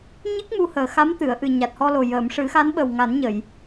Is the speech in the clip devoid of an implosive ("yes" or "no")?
no